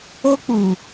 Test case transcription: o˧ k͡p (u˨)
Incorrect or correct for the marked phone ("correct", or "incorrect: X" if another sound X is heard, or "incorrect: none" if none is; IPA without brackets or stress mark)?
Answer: correct